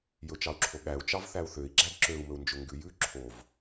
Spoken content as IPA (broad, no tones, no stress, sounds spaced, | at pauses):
j ɵ t͡ʃ ɑ u̯ ǁʰ o ɠ æ u̯ t͡ʃ ɑ v θ æ u̯ θ ø i̯ ɡ͡ǁ æ d ǁ ø u̯ m ɵ u̯ n d͡ʒ ɵ ŋ ɡ ʉ j ʉ ǁʰ o v